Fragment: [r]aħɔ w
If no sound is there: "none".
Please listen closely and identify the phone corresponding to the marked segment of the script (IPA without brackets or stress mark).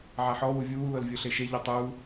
ʕ